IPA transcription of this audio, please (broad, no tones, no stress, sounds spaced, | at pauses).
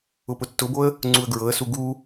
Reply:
ʊ p ʊ tː ʊ b o ə̯ | ŋ͡ǀ u ə̯ ɡ ɹ ɤ ə̯ s u ɡ u